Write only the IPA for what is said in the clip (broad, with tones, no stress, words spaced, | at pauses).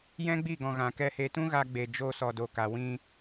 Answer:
jɛ̃˦ɡ͡bi˦˨ɡɔ̃˨ ɣã˨kɛ˧he˧ tũ˦ɣa˧ɡ͡be˨ d͡ʒoː˧sɔ˨do˨ka˨ wĩ˦